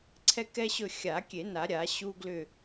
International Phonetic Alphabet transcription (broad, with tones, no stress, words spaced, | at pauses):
ǀʰɛ˦kɛ˦ɕɵ˦˨ xʲa˨˩˦ kʲe˨˩˦na˨˩˦ɾʲa˨˩˦ ɕu˦ɡlʏ˦˨